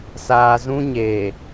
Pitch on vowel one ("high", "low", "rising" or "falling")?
low